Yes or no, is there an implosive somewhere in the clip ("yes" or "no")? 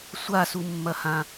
no